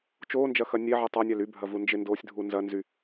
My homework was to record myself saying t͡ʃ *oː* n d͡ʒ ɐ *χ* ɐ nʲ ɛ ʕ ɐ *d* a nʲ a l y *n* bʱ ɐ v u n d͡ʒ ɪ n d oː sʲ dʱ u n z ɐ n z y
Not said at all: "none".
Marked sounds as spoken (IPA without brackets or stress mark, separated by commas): oː, x, tˤ, none